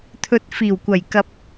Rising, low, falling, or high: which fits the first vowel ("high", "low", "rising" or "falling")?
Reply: rising